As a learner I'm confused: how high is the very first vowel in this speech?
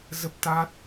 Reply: mid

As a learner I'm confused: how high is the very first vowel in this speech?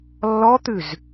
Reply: mid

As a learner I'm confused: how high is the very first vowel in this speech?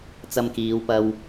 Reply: low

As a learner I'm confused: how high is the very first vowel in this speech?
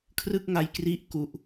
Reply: high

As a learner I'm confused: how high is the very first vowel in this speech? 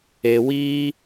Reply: mid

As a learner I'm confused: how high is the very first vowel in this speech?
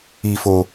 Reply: high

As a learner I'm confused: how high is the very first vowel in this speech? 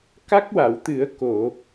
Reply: low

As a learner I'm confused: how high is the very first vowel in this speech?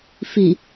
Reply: high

